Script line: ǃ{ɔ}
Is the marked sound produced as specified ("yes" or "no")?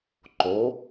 no